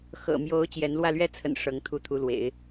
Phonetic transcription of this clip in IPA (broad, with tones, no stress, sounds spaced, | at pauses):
x ɤ̰˨˩ m j o˧˥ ʊ̯ t͡ɕ j ɛ˧˥ n l w ä˥˩ l ɥ ɛ˥ t͡sʰ ə̰˨˩ n ʂ ɤ˧˥ ŋ t̪ʰ u˥˩ t̪ʰ u˧˥ l w ḛ˨˩˦ ɪ̯